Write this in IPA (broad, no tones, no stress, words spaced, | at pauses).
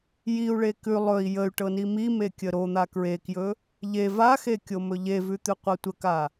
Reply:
jiu̯ɭe kʉ lˠɵi̯ jəy̯ʈɤ nimime kʲəɾon̪a kɹekjɵ | ʎev axe kʲomɵʎevʉ t̪ʉqʷɤtʷəka